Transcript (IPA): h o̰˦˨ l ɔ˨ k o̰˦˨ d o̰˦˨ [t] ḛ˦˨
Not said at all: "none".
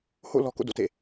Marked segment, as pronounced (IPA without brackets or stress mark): t